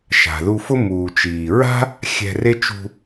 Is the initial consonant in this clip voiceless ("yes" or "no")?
yes